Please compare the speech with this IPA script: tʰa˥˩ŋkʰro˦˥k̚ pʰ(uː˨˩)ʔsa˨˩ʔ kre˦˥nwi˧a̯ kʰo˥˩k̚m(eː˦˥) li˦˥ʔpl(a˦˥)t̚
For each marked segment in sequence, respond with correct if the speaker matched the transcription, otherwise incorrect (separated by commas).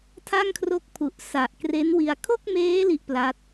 incorrect, correct, correct